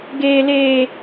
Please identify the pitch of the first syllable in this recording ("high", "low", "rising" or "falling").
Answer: high